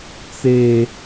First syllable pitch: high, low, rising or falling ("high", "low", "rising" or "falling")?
low